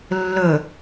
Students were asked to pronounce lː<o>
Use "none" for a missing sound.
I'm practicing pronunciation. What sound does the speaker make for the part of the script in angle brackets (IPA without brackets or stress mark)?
ɵ